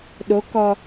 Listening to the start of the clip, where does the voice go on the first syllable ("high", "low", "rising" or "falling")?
rising